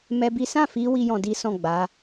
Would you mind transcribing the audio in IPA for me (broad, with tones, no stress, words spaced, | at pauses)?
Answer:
mɛ˦bi˦ sã˦˨fi˧ wi˦jɔ̃˧di˦ sɔ̃˦˨ ɡ͡ba˨˦